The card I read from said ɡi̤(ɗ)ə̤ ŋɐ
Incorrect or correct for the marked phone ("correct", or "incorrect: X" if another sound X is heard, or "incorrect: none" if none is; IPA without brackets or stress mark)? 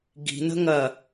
incorrect: n